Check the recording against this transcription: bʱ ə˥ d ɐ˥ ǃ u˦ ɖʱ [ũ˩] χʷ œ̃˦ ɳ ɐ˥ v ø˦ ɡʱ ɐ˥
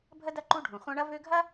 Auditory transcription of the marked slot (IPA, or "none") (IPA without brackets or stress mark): ũ˩